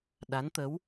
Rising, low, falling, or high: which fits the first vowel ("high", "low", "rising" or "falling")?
rising